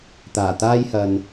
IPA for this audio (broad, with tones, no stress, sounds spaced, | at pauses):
t̪ aː˨˩ t̪ aː˥ j h ɐ˨ n